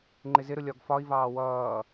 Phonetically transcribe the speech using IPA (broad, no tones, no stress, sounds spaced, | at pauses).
ŋ͡ǃ ɪ z ɪ ɾ ʊ lʲ ɒ ɡ f ɒ i̯ v ɑː w ʌː